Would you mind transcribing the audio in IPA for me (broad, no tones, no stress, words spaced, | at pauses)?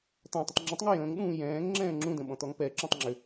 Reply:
t̪ɔ̃ tˤʏtˤŋ͡ǁə̃tˤŋə jə̃ːŋɗũː jɛ̃ːŋ ŋ͡ǁɛ̃ːŋ͡ǁũdə̃ ɓɔ̃t̪ɔŋpɛǁũtˤ ŋ͡ǁʏ